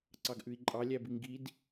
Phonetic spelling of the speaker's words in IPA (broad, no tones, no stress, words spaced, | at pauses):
ǀɑɡʔʉi̯ǃʼɑ lʲæbiŋɡid